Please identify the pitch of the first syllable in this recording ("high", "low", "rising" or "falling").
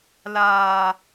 low